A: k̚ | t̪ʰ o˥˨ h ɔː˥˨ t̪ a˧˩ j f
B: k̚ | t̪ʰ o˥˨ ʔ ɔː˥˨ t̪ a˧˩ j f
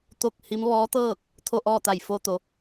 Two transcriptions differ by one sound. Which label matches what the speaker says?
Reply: B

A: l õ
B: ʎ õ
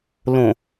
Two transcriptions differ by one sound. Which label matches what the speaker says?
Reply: A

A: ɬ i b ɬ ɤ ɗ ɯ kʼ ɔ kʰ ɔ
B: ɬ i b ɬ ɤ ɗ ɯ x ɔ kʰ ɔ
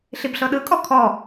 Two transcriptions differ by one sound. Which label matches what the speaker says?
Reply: A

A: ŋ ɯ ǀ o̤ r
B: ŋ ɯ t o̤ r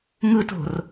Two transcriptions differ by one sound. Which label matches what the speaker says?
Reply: B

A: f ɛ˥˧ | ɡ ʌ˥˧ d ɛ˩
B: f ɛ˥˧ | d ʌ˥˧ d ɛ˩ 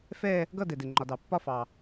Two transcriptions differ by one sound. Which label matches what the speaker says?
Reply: A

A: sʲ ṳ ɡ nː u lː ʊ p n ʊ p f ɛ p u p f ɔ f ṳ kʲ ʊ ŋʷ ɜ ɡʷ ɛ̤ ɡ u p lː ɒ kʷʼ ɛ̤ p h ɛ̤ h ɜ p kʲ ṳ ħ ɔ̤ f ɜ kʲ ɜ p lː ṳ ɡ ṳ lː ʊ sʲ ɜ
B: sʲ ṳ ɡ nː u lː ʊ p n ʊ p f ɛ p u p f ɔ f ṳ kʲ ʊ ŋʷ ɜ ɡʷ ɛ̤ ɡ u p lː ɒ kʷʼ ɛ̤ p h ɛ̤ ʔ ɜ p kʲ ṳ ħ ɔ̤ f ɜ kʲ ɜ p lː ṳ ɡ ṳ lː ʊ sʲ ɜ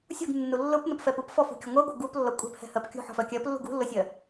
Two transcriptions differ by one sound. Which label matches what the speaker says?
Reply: A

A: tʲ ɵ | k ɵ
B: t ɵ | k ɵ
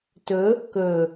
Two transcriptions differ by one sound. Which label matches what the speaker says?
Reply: B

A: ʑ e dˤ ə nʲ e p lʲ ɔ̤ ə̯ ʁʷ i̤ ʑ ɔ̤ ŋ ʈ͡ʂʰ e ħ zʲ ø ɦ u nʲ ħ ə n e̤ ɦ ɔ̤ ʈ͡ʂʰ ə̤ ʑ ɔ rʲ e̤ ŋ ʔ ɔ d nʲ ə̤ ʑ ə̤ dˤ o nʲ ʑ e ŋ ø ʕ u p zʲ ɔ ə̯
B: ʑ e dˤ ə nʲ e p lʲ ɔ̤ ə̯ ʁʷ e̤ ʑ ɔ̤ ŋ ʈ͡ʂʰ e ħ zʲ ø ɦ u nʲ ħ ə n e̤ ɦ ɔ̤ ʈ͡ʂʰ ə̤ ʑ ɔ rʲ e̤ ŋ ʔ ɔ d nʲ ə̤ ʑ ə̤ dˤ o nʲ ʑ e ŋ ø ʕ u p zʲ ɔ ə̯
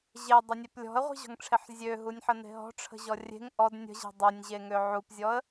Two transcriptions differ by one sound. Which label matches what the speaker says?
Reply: A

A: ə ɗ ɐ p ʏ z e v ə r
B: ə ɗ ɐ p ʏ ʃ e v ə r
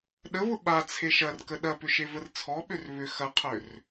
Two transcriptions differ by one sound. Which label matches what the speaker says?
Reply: B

